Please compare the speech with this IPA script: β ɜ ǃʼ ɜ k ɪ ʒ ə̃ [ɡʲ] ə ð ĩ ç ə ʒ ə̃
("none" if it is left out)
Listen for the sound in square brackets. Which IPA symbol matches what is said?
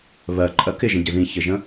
ɟ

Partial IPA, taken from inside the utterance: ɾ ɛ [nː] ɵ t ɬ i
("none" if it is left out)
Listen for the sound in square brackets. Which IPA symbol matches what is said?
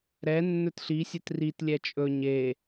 nː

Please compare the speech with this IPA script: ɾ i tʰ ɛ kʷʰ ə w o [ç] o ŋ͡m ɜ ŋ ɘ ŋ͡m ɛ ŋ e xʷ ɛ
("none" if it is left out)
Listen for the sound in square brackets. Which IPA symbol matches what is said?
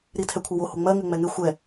h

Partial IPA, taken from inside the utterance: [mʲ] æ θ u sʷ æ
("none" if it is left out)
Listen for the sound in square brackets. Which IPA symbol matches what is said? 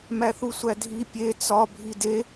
m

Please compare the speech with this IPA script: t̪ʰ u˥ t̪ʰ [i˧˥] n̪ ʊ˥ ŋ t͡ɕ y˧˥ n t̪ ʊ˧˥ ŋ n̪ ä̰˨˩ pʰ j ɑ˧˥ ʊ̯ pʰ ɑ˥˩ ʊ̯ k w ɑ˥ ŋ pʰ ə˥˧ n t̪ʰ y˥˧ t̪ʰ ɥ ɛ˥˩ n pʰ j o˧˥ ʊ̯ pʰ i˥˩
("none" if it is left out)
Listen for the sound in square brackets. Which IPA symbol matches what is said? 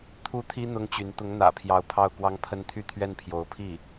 i˥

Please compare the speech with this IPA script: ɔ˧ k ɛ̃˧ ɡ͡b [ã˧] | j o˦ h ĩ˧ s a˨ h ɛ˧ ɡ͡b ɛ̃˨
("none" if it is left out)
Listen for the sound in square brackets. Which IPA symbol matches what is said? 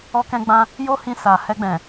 ã˧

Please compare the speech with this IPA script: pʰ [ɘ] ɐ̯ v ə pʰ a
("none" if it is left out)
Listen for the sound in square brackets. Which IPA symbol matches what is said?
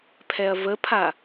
ɛ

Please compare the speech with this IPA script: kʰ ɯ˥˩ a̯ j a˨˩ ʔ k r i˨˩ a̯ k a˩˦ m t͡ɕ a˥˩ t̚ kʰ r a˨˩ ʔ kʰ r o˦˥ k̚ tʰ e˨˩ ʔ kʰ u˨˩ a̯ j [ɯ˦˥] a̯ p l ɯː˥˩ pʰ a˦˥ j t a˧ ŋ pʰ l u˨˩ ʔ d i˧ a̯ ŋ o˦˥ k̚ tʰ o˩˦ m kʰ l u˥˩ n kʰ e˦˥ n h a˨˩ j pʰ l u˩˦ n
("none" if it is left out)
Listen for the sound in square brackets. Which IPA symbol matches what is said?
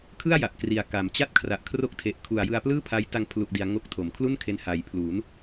ɯ˧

